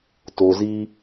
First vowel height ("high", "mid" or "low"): mid